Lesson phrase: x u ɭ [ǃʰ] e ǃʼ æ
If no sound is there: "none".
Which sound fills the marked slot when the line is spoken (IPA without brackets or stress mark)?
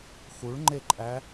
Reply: ŋ͡ǃ